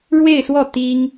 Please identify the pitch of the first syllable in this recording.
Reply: falling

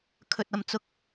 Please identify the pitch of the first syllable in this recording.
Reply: low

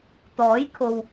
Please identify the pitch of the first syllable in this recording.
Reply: rising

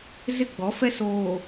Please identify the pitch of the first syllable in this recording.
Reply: falling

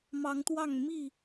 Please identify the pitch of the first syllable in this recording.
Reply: rising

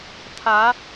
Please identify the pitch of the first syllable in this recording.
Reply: rising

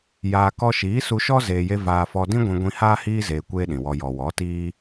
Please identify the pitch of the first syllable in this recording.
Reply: low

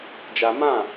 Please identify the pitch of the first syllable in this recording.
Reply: high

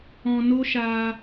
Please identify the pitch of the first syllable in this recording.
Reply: low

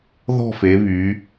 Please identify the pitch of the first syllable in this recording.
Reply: falling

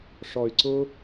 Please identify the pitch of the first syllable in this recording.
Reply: low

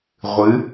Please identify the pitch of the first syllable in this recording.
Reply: rising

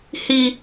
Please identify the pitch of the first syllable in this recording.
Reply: high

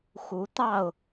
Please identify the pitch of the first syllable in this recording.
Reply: rising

